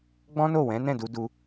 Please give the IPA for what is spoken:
ɡ͡bɔ̃˦no˦˨wɛ̃˨˦ nɛ̃˦˨du˧du˧

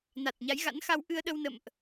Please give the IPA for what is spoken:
na˨˩t̚ɲa˨˦jɣa̰˧˥nxa˧w ʔɨ˧ə̯ɗə˧wnə̰˧˨mʔ

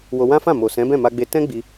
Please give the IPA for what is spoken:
wo˧ wã˦fã˦˨ mo˨ sɛ̃˨˦bɛ̃˦˨ma˧ɡ͡be˧ tɛ̃˦ɡ͡bi˧

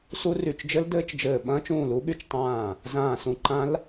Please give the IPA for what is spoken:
su˦˥ry˧˩t͡ʃd͡ʒɘ˦˥ldɘː˦˥t͡ʃ d͡ʒɘː˧˩ ɓɐ̃ː˦˥t͡ʃ ũː˧˩lu˦˥ɠy˧˩t͡ʃ tˤãː˧˩ | zãː˧˩sũ˧˩ǃã˦˥l

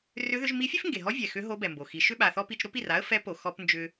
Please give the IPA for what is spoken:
rʏ˧˥ ðʏ˧˥ʒ mi˧˥fʲe˥fŋɡe˩ɦɔ˧˥ vʲɛ˩xʏ˧˥ ɦo˧˥bɛ˩mbo˩xi˩˧ ʃʏ˥ɓa˩θɔ˥ pi˧t͡ʃɾo˥pi˩r a˥ə̯ fɛ˧˥po˩ xɔ˧pnd͡ʒʏ˧

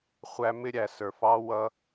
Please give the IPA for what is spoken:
χʷæ˦mɪ˥ɾʲæ˨ sə˞˨fɑ˦wʌ˦

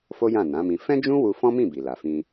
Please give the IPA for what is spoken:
fo˦jã˦˨ nã˨˦mĩ˧ fɛ̃˦d͡ʒũ˦ wu˧fɔ̃˦mĩ˦˨ bi˨la˨fĩ˧

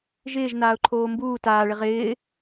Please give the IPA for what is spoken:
ʒɪːʒnaːʊ̯ǃʰoː mbuː taːɭɪ ʁɪː

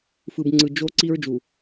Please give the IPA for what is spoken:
fɯ˨bŋ͡ǀɯ˨d͡ʒo˦ ǀi˦ɹd͡ʒu˨

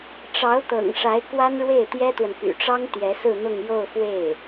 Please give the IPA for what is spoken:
ʈ͡ʂɑ˧˥ʊ̯t̪ɤ̰˨˩ŋʂa˧˥ɪ̯ kwa˥nɻwe˥˩ɪ̯t̪jɛ˥t̪wə˨n py̰˨˩ʈ͡ʂɑ˥ŋ t̪jɛ˧˥sɹ̩˥˧n̪ʊ˥˧ŋ jo˥˧ʊ̯fwe˥˩ɪ̯

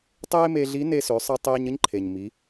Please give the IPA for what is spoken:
tˤeː˥me˧ɮi˧˥ ne˧sø˩˧sˤəː˧tˤeː˧ɲ ə˥ɲǃʰe˩ɲ mi˩˧

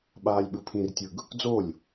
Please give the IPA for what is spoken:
ɓaːlʲɓɯpʰĩrtʲɯɡ | d͡zolʲ

